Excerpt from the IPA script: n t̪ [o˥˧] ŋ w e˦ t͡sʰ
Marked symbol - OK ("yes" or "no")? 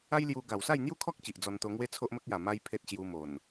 no